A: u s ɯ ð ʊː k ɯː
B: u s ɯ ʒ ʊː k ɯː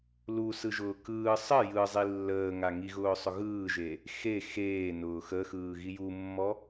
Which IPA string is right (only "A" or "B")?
B